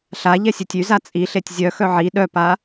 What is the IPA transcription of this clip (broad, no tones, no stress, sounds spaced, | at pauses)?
ɬ a ʎ ɛ sʲ ø tʲ y z a t͡sʼ i ɬ e tʲ zʲ œ x œ ʕ i ɗ œ p a